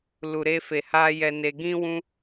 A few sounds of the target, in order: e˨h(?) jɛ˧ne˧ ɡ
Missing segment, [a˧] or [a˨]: a˧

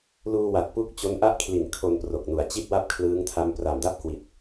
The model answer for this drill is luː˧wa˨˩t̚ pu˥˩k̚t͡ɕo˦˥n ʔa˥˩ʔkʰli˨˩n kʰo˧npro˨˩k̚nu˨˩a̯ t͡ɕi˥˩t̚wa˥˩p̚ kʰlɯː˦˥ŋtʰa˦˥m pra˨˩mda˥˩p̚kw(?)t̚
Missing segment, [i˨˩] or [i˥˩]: i˨˩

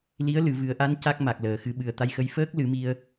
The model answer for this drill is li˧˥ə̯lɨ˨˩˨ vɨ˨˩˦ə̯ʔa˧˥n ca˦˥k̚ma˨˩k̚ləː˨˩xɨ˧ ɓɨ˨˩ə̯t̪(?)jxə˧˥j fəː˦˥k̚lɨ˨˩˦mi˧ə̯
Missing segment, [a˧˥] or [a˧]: a˧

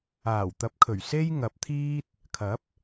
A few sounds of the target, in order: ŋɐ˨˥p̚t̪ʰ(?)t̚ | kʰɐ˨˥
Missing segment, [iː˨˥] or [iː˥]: iː˥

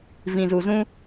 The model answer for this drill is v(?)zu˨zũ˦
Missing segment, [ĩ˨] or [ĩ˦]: ĩ˨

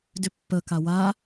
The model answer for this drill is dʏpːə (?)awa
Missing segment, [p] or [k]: k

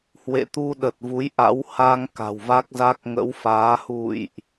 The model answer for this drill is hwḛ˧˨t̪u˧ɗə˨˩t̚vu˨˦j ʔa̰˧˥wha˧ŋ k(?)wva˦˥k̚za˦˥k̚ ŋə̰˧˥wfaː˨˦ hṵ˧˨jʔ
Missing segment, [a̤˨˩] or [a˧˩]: a̤˨˩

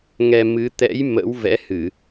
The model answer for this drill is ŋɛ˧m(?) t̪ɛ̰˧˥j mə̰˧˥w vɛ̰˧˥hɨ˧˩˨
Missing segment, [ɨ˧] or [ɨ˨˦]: ɨ˨˦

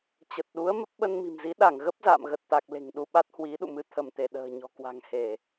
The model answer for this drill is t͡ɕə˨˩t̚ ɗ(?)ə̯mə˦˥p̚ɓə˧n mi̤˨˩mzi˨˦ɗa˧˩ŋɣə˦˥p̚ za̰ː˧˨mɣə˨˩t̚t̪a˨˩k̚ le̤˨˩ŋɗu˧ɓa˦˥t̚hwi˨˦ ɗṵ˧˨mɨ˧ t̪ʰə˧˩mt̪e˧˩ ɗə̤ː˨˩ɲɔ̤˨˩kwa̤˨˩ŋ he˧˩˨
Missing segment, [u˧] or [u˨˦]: u˨˦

